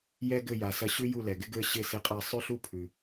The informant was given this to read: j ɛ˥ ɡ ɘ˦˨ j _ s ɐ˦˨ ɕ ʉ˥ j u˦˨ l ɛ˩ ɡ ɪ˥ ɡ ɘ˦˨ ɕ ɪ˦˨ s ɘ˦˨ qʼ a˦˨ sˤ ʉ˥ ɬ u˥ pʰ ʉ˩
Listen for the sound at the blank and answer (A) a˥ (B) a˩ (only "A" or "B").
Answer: B